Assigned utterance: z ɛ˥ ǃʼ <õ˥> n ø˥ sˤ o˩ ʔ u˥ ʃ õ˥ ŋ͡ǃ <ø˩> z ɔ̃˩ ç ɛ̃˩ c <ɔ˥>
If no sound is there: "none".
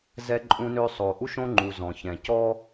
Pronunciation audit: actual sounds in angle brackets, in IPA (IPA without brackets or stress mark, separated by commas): ũ˥, u˩, ɔ˥